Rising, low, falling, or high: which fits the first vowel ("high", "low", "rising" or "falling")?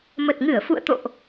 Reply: low